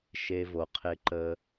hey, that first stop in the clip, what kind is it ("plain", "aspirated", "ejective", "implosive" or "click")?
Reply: aspirated